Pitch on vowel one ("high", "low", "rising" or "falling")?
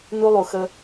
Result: high